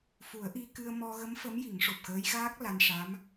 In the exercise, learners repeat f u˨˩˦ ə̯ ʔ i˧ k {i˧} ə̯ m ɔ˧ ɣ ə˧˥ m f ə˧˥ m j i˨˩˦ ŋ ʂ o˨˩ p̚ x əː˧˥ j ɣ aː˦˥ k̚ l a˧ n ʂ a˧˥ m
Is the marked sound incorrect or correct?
incorrect: ɨ˧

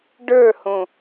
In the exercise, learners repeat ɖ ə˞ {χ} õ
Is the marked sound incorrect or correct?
incorrect: h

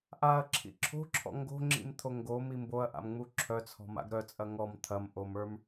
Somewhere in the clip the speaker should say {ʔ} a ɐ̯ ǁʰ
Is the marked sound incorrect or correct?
correct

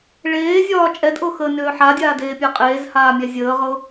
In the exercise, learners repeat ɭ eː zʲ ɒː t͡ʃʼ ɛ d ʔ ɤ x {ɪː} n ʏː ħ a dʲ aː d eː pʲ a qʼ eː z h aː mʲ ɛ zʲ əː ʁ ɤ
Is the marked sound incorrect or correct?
incorrect: əː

